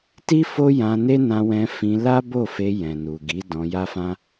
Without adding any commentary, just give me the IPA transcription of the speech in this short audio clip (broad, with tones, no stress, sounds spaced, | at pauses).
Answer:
t i˦ f o˦ j ã˧ n e˦ n ã˧ w ɛ̃˧ f ĩ˧ l a˦ b o˦˨ f e˧ j ɛ̃˨ n u˨ ɡ i˨˦ d ɔ̃˧ j a˦ f ã˦